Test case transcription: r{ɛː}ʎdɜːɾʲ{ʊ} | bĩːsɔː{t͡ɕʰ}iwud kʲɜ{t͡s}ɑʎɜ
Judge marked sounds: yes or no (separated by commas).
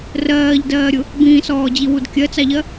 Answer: no, yes, no, yes